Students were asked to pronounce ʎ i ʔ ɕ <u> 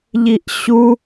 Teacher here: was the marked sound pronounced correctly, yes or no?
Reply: yes